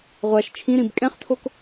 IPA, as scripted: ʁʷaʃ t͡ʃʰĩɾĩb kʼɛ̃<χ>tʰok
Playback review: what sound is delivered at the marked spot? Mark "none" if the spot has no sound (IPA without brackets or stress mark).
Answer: χ